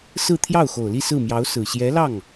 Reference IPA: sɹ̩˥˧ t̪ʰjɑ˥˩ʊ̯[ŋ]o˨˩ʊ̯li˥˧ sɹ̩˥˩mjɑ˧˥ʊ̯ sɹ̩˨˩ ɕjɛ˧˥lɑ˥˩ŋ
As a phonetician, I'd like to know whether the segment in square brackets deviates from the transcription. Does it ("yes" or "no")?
yes